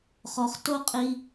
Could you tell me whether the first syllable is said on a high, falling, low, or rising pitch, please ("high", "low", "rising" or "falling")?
low